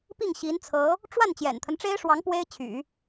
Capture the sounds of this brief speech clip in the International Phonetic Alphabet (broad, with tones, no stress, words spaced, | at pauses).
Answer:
pi˥˩ŋ ɕi˧˥nt͡sʰɤ˧˥ | ʈ͡ʂwa˥˩n t͡ɕjɛ̰˨˩nt̪ʰə˦nʈ͡ʂe˥ɪ̯ʂwɑ˧˥ŋ pwe˥ɪ̯t͡ɕʰy̰˨˩˦